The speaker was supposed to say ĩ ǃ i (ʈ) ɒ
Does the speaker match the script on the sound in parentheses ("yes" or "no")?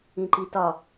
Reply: no